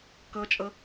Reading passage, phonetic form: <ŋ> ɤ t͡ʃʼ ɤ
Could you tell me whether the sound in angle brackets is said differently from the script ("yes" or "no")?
yes